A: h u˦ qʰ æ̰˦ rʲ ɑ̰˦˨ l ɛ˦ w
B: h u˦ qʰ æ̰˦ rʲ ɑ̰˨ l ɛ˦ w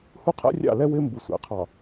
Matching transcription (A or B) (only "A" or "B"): A